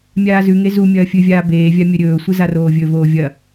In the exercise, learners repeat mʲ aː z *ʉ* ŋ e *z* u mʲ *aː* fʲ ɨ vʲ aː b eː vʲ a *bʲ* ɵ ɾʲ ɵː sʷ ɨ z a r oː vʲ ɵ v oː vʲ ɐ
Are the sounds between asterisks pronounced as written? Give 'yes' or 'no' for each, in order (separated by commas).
yes, yes, no, no